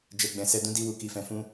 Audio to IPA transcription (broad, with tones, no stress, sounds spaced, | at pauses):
d͡ʒ ɛ˨ ɡ͡b ɛ̃˨ s ɛ˧ d ũ˧ d i˧ w u˨ k i˨ f ɛ̃˨ f ũ˧